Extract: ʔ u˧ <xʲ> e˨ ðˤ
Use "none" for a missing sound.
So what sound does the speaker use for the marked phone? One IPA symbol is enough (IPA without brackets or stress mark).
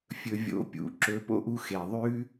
x